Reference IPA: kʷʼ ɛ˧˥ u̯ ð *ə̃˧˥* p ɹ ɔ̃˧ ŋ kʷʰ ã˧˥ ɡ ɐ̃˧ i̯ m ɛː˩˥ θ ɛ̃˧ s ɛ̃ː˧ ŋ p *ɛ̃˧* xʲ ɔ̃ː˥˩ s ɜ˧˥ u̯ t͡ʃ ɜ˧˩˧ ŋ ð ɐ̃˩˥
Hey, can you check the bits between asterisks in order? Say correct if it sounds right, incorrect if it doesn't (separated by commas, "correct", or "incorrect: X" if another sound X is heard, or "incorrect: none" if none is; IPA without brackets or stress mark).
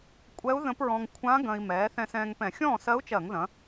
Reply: correct, incorrect: ɛ̃˧˩˧